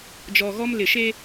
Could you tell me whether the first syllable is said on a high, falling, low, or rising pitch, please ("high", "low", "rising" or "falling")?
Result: low